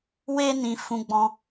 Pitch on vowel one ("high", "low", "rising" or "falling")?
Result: high